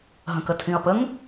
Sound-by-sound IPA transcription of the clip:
ɦ ə̃ k ə tʰ ĩ ɐ̯ p ə ŋ

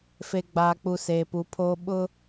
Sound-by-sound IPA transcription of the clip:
f e˨ ɡ͡b aː˨ k͡p u˨ s eː˨ p u˨˦ pʰ oː˦ ɓ ʊ˦

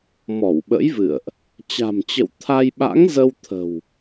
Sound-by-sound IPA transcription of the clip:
m ɔ˧˩ w ɓ ə̰˧˥ j v ɨ̰˧˨ ə̯ ʔ | t͡ɕ a̤˨˩ m t͡ɕ ə̰˧˨ w t̪ʰ a˧ j ɓ a̰˧˥ ŋ z ə˧ w t̪ʰ ə̤˨˩ w

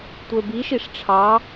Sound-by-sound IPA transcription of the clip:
tʷ ə˞ b i ʃ i ʂ ʈ͡ʂʰ ɑ

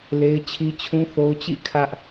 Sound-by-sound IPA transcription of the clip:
l e˦ ɪ̯ t͡ɕʰ i˦ t͡ɕʰ ũ˦ θ o˦ ʊ̯ t͡ɕ ḭ˦˨ kʰ ä˦ ʔ

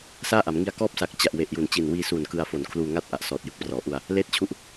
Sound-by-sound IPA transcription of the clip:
s aː˥˩ ʔ a˩˦ m ŋ i˧ a̯ k ɔː˥˩ p̚ s a˨˩ k̚ t͡ɕ a˨˩ ʔ w e˨˩ ʔ j u˨˩ n t͡ɕ i˨˩ n w iː˧ s u˨˩ n k ɯ˧ a̯ f o˨˩ n kʰ l uː˧ ŋ a˥˩ t̚ ʔ a˨˩ ʔ s ɔː˨˩ t̚ j ɯ˨˩ k̚ p r ɔː˩˦ ʔ u˧ a̯ | l eː˥˩ t̚ t͡ɕʰ u˦˥ ʔ

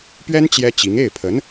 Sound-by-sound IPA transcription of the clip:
p ɥ ɛ˥ n t͡ɕ j ɛ˥ t͡ɕ i˧˥ ŋ e˥˩ ɪ̯ pʰ ə˧˥ n

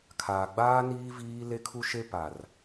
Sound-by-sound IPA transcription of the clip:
kʰ aː˨ ɡ͡b aː˦ n iː˦ v iː˦ l e˦ kʰ u˦ ʃ e˦ p a˨ r

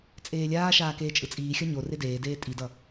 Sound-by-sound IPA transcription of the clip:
t͡sʼ eː lʲ aː ʃ aː k eː t͡ʃʼ ɯ t͡sʼ iː xʲ ʌ ɲ o r e d eː d eː tʼ i d ʌ

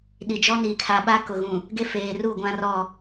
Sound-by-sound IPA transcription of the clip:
ɗ i˨ d͡ʒ ɔ˦ n iː˨ kʰ a˨ ɓ a˦ k ʊ˨ ɣ ũ˨ | ɡ e˦ f eː˨ r u˦˨ ɡʷ ã˦ r ɔ˦˨

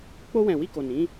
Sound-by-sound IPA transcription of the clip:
k͡p o˧ w ɛ̃˨ w i˧ k o˨ n ĩ˨˦

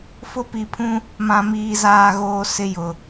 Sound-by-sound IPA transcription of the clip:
f ʊ˦ p i˨ pʰ ũ˦ | m ã˦ m iː˦ z aː˦ ɣ oː˦ s ɪ˦ j ʊ˨

